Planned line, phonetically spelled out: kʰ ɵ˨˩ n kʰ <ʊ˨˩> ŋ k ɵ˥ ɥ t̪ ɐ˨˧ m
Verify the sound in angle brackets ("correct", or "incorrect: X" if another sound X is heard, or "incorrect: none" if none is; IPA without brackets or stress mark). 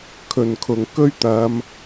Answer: correct